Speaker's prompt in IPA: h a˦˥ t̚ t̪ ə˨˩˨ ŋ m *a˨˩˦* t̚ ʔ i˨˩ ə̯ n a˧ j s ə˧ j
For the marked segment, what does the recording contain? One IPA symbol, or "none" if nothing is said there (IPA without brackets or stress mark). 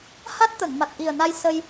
a˨˩